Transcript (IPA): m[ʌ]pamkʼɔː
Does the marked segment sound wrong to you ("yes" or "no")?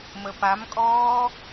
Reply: yes